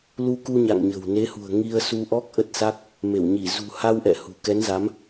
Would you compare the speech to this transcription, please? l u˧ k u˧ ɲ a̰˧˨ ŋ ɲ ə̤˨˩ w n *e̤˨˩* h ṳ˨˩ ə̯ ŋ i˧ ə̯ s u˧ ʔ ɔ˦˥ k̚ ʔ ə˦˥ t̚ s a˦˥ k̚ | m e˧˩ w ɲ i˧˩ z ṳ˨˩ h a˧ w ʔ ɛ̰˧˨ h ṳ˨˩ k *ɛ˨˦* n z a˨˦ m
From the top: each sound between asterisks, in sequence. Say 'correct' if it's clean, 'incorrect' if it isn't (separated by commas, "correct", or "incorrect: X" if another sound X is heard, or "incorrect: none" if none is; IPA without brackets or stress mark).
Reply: incorrect: e˨˦, correct